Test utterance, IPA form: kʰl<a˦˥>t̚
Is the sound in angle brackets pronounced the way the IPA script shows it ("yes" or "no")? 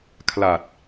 no